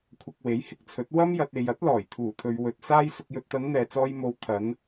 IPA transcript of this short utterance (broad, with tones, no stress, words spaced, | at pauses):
kʷʰɐ˧k̚we˨˥jhɪ˧k̚t͡sʰɵ˨˥t̚ wɐ˧mjɐ˨t̚ e˨jɐ˨˥t̚lɔː˨˩j t̪ʰuː˨˩t̪ʰɵ˨ɥ wɵ˨t̚ saː˧jsʊ˨k̚jɵ˨t̚t̪ɐ˨˧n n̪ɛː˨t͡sɔː˧j mo˨˧w t̪ʰɐ˨˧n